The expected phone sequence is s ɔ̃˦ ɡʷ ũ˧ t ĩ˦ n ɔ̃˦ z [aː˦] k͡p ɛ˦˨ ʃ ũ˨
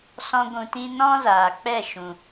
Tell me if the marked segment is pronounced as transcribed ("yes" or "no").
no